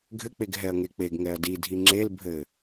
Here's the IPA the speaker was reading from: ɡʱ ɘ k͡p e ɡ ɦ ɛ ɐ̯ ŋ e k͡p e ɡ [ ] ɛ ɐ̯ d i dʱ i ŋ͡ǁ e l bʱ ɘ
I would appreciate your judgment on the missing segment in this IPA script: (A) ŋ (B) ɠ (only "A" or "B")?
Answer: A